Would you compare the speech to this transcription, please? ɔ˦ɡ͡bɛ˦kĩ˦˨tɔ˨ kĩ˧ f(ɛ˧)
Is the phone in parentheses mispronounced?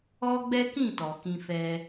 no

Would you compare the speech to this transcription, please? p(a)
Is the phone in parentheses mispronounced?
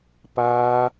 no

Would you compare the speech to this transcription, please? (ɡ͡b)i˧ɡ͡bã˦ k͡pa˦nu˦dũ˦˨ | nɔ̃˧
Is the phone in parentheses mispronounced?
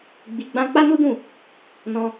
no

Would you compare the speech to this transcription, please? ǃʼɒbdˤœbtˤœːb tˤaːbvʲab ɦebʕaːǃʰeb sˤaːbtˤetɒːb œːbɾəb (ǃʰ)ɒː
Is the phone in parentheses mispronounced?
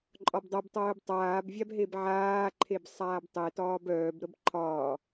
no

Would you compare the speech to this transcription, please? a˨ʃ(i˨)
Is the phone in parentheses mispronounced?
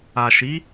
yes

